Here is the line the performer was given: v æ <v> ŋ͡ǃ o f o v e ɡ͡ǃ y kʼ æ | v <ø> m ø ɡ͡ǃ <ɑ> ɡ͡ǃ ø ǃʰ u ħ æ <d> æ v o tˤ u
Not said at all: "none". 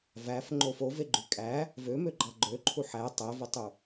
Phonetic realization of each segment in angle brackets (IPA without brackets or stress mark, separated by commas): f, ø, ɑ, tˤ